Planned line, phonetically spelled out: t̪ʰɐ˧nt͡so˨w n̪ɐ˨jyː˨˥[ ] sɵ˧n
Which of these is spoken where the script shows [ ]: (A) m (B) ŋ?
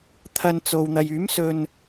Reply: A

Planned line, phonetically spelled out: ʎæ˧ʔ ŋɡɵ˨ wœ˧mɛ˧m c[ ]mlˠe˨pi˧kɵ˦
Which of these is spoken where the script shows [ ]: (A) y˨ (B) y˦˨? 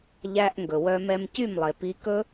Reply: B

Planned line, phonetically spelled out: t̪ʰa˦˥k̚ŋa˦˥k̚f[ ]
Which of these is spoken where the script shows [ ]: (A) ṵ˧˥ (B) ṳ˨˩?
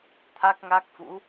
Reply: A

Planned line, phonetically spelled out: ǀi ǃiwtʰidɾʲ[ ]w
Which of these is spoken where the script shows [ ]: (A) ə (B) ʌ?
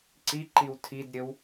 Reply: A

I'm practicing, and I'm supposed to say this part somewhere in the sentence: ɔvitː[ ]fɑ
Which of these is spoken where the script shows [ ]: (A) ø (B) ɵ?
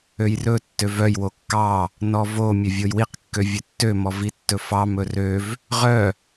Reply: B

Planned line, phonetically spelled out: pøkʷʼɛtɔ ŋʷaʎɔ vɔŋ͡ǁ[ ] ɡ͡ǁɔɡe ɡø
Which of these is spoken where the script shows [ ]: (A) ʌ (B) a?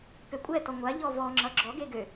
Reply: A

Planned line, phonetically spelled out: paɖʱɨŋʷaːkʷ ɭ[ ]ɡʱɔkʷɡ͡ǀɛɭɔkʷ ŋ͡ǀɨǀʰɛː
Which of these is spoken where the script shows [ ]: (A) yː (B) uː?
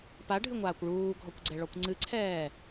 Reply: B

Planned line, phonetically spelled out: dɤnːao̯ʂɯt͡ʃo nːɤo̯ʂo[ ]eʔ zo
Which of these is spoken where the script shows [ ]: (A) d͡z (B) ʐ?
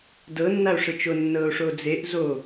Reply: A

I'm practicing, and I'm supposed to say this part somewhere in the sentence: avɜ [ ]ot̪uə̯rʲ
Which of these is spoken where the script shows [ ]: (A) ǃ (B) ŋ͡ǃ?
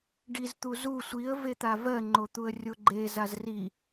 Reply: B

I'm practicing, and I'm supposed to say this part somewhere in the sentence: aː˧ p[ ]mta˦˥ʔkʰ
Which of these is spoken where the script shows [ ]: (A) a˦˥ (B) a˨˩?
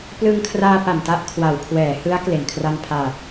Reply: B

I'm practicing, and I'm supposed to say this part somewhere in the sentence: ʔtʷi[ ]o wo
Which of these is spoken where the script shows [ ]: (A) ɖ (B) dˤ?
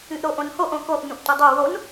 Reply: B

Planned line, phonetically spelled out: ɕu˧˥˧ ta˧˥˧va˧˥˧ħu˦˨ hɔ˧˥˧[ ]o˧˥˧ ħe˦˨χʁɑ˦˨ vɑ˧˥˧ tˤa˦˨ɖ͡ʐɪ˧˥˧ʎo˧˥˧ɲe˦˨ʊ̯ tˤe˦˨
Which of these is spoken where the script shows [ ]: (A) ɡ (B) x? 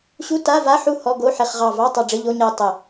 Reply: A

